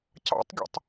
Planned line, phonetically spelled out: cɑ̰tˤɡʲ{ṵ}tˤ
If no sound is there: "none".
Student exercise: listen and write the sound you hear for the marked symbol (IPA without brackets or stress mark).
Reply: o̰